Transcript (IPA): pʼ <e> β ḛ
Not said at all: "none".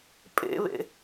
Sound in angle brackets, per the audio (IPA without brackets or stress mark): ḛ